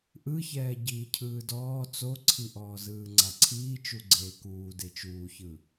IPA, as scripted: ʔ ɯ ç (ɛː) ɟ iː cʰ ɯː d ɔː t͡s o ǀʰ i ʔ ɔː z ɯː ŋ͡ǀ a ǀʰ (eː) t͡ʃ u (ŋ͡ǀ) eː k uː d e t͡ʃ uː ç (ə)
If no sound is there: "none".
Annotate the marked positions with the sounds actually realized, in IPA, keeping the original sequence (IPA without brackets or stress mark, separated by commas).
ɛː, iː, ɡ͡ǀ, ɯ